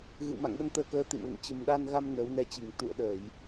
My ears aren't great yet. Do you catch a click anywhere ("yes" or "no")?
no